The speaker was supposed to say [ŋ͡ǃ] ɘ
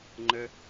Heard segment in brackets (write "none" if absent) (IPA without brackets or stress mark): ŋ͡ǃ